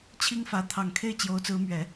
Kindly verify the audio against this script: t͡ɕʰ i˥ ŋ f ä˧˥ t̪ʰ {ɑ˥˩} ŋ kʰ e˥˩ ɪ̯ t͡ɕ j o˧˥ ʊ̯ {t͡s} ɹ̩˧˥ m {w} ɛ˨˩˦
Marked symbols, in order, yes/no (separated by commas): no, yes, no